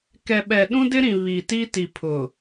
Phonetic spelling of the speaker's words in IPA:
k ɛ˨ ɓ ɛ˨ ɗ ũ˦ d ɪ˦ ɾ ĩ˨ β i˨ t i˦ t i˨ pʰ ʊ˨

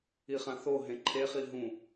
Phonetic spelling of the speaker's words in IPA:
i χ ã θ o ɦ ẽ ǃʰ e χ i ɦ ũ

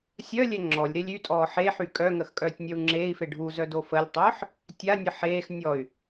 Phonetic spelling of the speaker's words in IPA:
sʲ œ lʲ ɛ ŋ͡ǁ ɔ lʲ ɾ e lʲ y tʼ ɔː ħ e ħ y kʼ œ ŋ ə x kʼ œː tʲ nʲ œ u̯ ŋ͡ǁ eː i̯ f e ɖʱ u z œ d o f ə lʲ tˤ œː ħ | tʲ a nʲ ə ħ eː x nʲ ɔ y̯

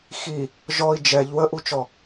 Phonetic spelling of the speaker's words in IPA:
x i | ʒ ɔ i̯ d͡ʒ ɛ ʎ w ə ʔ u t͡ʃ ɔ

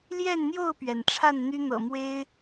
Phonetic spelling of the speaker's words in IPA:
l j ɛ˥˨ n n̪ j o˥˨ ʊ̯ p ɥ ɛ˩ n ʈ͡ʂʰ a˥˨ n n̪ y˦ n̪ ɤ̰˨˩ m w e˦ ɪ̯

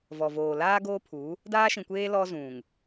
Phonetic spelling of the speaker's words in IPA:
v ɔ˨ v oː˨ l aː˦ ɡ oː˦ pʰ u˨˦ | d aː˦ ʃ ĩ˨ kʷ eː˦ l ɔ˦ z ũ˨ ŋ

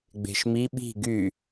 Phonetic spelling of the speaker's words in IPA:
ɡ͡b e̤ ʃ m i ɓ i̤ ɡ y

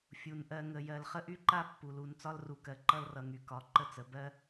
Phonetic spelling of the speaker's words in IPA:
fʲ u˩ n ʔ ɜ˨ ŋ ə˩ j ɜ˩ l χ ə˦ ʔ y˦ ǃ a˦ pː u˩ l u˨ n t͡s ɒ˦ l r u˩ k ɜ˩ ǃ ʌ˦ l r ʌ˨ ŋ y˩ k ɒ˨ ǃ ə˦ t͡s ə˩ b ɜ˥

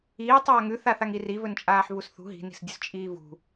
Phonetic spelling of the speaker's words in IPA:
iː tˤ aː ŋ ʉ θ a θ a ŋ i r i v ɵ n t͡ʃʼ aː ħ v u s θ ṳ ɦ i̤ n i̤ s dʲ ɵ s t͡ʃʼ iː v ṳ

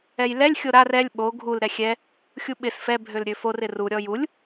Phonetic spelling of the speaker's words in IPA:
ɛ j l ɛ lʲ xʲ o ɾ a r ɛ lʲ ɓ o ɡʱ u l ɾ ɛ xʲ ɛ | xʲ u ɓ ɪ s f ɛ bʱ ø l ɾʲ ø f o r ɪ r u ɾʲ ɔ j u lʲ

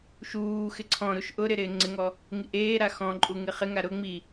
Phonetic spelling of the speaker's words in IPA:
ʃ uː x ɪ ǀʰ ɔ̃ ɾ u ʃ ʔ ʊ ɾ ɪ ɾ ɪː ŋ͡ǀ ɪ ŋ ɔ | ŋ i ʔ eː ɾ a x ɔ̃ ǃʼ u ŋ ɪ χ ɪ ŋ a ɾ ʊ ŋ͡m i

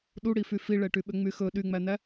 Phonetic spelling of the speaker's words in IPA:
ɗ u ɽ i f y f i ɭ ɛ ʈ y ɓ ø ŋ͡m y x ɵ ɗ y ŋ͡m æ n̪ æ

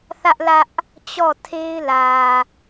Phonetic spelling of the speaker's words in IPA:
θ ä˦ ʔ l ä˦ ʔ | t͡ɕ ɔ˦˨ tʰ e˦ ɪ̯ l ä˨

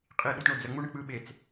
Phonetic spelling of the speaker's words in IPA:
qʼ i ɗ u t ɳ o d͡z ə ŋ͡m u ɳ ə k͡p ɯ ɓ e t͡s

